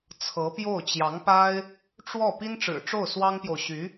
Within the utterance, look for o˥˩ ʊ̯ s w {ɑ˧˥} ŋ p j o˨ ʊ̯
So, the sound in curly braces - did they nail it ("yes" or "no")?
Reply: no